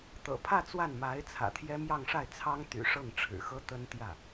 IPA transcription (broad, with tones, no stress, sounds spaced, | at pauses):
t̪ ɤ̰˨˩ pʰ ä˥˧ t͡s w a˥˩ n m a˧˥ ɪ̯ t͡sʰ ä̰˨˩ t̪ʰ j ɛ˥ m j ɑ˥˧ ŋ ʂ a˥˩ ɪ̯ t͡sʰ ɑ˥ ŋ t̪ y̰˨˩ ʂ ɤ˥˩ ŋ ʈ͡ʂʰ ɻ̩˨˩ x ɤ˥ t̪ ə˥ n t̪ j ä˥˩